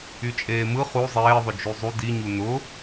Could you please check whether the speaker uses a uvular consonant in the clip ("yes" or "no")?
yes